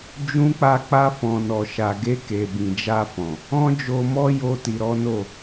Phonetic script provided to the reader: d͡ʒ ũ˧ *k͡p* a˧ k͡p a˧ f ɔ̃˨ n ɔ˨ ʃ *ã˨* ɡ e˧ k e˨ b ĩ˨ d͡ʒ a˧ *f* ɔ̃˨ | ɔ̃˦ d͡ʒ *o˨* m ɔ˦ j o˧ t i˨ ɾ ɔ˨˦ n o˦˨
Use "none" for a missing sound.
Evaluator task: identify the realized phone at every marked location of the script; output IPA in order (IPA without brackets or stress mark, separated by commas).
k͡p, a˨, f, o˧